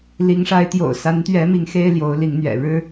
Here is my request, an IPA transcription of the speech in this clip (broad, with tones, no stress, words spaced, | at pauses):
li˨˦ŋʂa˨˦ɪ̯t̪jo̰˨˩ʊ̯ sa˨˦nt̪ɥɛ˨˦mi˨˦ŋ xe˦ɪ̯ljo˨˦ʊ̯li˨˦ŋ n̪ɥɛ̰˨˩ ɻɻ̩˦